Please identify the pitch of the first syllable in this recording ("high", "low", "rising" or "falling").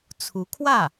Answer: rising